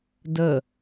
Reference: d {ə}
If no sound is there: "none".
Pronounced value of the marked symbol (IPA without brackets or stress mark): ə